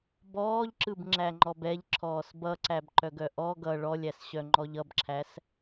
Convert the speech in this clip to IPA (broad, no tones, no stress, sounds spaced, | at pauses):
b ɔː ʎ ǁ ɯ b ŋ͡ǁ æ ŋ͡ǃ ɔ b ɛ ʎ ǁʰ ɔː s b ʌ ǀ æ b ǃ œ ɡ œ ʔ ɔ ɡ ʌ ɭ ɔ lʲ æ s ɕ œ ŋ͡ǃ ɔ ʎ ʌ b ǁʰ æ s